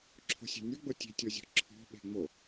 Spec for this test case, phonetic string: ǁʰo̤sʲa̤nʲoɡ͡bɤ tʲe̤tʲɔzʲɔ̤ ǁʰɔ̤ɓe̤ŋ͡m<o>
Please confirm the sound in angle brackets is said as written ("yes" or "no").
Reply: yes